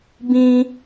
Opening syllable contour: high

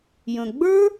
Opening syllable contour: low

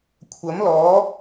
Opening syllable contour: rising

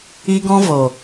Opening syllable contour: high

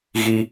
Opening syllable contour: high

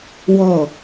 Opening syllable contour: falling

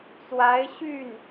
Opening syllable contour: rising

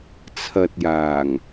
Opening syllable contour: low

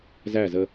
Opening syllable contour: falling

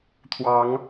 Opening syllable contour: rising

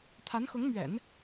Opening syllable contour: rising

